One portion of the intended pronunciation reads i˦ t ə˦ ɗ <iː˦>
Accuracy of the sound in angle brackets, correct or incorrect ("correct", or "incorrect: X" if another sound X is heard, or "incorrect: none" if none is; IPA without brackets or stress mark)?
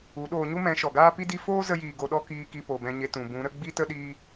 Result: incorrect: iː˧